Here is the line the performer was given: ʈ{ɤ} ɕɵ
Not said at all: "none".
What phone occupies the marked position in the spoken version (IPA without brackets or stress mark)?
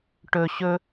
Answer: ɵ